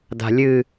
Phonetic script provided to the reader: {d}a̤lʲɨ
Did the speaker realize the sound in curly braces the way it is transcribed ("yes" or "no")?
yes